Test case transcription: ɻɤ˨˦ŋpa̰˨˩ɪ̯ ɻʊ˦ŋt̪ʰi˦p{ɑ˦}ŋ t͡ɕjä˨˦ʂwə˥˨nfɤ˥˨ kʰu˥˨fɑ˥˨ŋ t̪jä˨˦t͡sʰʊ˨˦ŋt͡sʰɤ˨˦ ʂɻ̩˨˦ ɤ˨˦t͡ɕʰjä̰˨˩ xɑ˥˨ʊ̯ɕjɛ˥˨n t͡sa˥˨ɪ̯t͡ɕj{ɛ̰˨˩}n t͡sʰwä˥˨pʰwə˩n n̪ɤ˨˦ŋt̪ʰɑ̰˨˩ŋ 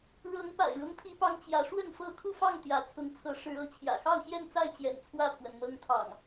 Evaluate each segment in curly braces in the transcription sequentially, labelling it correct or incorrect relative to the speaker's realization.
correct, correct

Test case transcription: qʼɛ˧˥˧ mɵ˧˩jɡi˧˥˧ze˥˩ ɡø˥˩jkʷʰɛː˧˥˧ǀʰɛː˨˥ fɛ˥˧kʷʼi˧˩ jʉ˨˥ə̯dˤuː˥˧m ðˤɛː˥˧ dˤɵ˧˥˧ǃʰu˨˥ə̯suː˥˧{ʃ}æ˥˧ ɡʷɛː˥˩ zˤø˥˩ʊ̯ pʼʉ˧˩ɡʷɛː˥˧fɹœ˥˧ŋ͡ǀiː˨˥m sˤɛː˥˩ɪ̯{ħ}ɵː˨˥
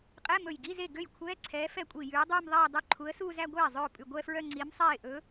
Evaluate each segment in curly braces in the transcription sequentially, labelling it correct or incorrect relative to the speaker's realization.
incorrect: z, incorrect: ʔ

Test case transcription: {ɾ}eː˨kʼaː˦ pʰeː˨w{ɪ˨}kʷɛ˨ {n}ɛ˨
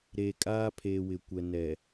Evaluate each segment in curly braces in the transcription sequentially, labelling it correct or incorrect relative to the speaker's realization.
correct, correct, correct

